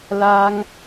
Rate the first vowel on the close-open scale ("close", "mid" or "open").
open